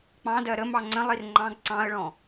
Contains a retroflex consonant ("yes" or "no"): yes